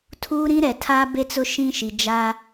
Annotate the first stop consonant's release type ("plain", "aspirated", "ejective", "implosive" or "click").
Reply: aspirated